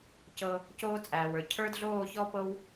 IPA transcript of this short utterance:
c ɤ˧ | c oː˦ t͡sʼ æː˨ w ə˞˨ cʰ ə˞˦ d ɮ oː˦˨ ç ɔ˦ p ɤ˦ w

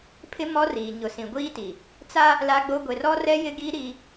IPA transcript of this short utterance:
pʰ ɪ˦ m ɔ˦ r iː˨ ɲ ʊ˨ s ĩ˨ ɡʷ iː˦ t i˨ | t͡s a˦ | l aː˦ ɡ͡b o˦ ɡʷ e˨ r ɔ˦ r ɛ˦ j ɪ˦ ɡ iː˦ ɾ i˦

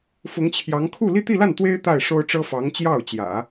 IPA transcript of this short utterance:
f ʊ˧˥ ŋ t͡ɕʰ j ɑ˧˥ ŋ kʰ u˥˧ l i˥˧ t̪ i˥˧ l a˥˩ n t̪ w e˥ ɪ̯ t̪ a˥˩ ɪ̯ ʂ o˥ ʊ̯ ʈ͡ʂ ɤ˥ f ɑ˧˥ ŋ t͡ɕ j ɑ˥˩ ʊ̯ t͡ɕ j ä̰˨˩˦

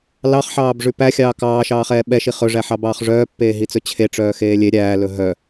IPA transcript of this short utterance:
l ɑ χ ħ ɑː b ʐ ʉ p æ xʲ ɑː k ɑː ʃ ɑː χ ɛː ɓ ɛ ʃ i χ ɵ ʐ æ ħ ɑ b ɑː χ ʐ œː pː eː ɦ i t͡s ɵ t͡ɕʰ e ʈ͡ʂ œː x eː lʲ e ɾʲ æː l ɵ ɦ œ

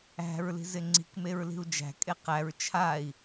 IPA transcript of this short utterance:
æ̤ ɹ l i̤ z ɪ ŋ͡ǀ i̤ k m e ɹ l i̤ u̯ d͡ʒ æ̤ kʼ e q æ ɹ t͡ʃʰ a i̯

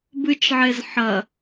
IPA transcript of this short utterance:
b ɨ t͡ʃ ʕ e z ħ ɐ

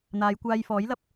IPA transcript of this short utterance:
n̪ aː˨˧ j kʷ aː˧ j f ɔː˨˥ j l ɐ˨ p̚

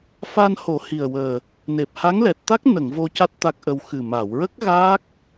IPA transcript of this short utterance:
f a˧ n h o˨˩˦ h i˨˩ ə̯ w əː˨˩ | n e˨˩ p̚ h a˧˥ ŋ l ɛ˨˩ t̚ t̪ a˦˥ k̚ n ə˨˩˨ ŋ v o˧ c a˦˥ t̚ t̪ a˦˥ k̚ ʔ ə˧ w x ɨ˨˩ m a˨˩˨ w ɹ ə˦˥ k̚ ɣ aː˦˥ k̚

